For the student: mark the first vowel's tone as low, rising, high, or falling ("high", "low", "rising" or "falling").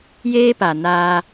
high